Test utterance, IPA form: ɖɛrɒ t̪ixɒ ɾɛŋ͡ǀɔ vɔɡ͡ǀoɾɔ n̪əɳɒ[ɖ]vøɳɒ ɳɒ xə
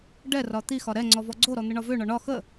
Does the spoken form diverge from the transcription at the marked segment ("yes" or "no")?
yes